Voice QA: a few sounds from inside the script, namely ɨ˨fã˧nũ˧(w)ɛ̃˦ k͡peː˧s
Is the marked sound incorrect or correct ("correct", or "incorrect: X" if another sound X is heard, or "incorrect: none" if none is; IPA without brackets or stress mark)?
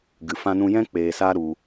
incorrect: j